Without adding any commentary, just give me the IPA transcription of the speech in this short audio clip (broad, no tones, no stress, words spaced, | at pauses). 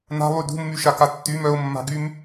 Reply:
na̤lˠy dṳmːyʃaka tːym œʊ̯mːa̤ɡym